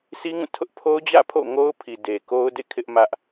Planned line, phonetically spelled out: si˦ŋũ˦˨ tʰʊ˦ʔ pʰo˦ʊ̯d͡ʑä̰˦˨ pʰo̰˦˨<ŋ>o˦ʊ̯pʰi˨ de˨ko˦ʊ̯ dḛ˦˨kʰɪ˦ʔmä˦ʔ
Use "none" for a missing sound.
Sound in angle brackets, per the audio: ŋ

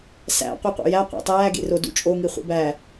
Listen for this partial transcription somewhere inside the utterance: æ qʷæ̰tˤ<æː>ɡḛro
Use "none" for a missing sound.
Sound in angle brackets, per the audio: æː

